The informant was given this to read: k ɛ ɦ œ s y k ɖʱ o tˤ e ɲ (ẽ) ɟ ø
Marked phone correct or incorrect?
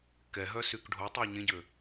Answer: correct